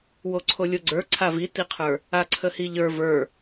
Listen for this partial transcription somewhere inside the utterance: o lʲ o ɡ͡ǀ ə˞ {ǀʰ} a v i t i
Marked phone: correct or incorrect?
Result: correct